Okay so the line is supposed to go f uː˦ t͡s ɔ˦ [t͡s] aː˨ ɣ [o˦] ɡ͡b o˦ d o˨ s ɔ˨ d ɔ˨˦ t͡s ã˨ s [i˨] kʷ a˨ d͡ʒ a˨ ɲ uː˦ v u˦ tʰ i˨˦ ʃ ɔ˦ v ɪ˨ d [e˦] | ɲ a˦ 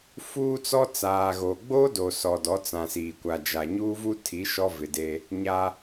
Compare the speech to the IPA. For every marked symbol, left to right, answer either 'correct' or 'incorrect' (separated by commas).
correct, incorrect, incorrect, correct